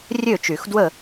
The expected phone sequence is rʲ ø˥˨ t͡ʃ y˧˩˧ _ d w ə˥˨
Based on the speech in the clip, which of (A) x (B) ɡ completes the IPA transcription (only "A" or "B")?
A